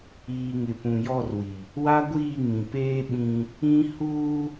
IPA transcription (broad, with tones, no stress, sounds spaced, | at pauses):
iː˨ ŋ ɪ˨ p ũ˨ j ɔ˦˨ r w i˨ | w a˦ ɡʷ iː˦˨ ŋ ĩ˨ p eː˦ ɓ ĩ˦ | ĩ˦ h uː˦